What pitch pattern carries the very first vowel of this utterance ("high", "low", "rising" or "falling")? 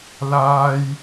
high